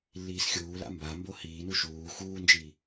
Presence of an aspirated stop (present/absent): absent